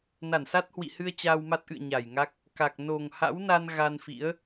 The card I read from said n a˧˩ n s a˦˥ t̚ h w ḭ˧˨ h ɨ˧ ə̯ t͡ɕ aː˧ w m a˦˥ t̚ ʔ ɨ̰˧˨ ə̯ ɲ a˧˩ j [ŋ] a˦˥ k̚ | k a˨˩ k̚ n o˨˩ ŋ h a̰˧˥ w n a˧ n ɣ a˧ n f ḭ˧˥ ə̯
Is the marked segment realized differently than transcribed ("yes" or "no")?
no